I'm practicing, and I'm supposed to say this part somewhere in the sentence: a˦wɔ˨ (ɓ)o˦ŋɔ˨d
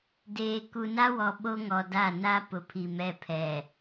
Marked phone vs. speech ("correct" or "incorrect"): correct